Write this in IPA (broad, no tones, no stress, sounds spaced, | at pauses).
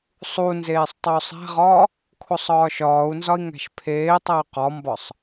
sˤ u n z eː sˤ tˤ o u̯ sˤ æ̤ ʁ ɒː | kʰ o sˤ ɒː ʃ ɒː u̯ n z ɒ i̯ ŋ æ̤ ʃ pʰ eː tˤ æ y̯ q ɒ m b ɒ sˤ